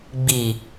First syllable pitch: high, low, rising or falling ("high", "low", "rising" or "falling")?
low